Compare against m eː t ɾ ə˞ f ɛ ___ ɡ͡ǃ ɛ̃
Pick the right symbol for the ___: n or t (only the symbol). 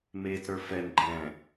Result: n